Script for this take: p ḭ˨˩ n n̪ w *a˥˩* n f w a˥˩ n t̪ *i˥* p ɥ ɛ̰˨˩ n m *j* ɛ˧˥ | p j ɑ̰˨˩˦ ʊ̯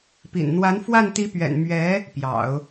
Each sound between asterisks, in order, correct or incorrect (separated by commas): incorrect, incorrect, incorrect